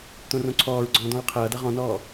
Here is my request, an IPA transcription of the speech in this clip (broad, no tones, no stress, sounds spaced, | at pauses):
t̪ õ r õ ǀʰ ɔː ɹ ɡ͡ǀ ɔ̃ː d ɔ̃ ɹ qʰ ʌː d ʌ ʁ ɔ̃ n ɔː